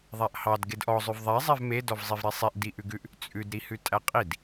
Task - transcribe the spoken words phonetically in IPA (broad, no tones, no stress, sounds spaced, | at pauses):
ðˤ æ ʔ h ɑ d ɡ e d ʔ ɔ zˤ ʉ v ðˤ ɛ zˤ ɛ v m e d ɔ v zˤ i v ɾ e sˤ i ʔ d i ʔ ʉ ɡ ʉ ʔ | t͡sʼ ʉ d ɾ i h ʉ tʼ æ qʼ i d